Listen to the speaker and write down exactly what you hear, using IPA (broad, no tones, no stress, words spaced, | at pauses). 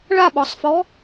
ɭaɓɔsˤfɔ